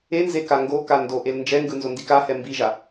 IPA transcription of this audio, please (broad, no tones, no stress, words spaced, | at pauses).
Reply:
enze kaŋɡoka ndoʔel nd͡ʒɛŋɡɯ nzondikahɛ mbiʒa